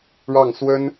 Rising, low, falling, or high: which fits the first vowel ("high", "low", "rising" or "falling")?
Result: falling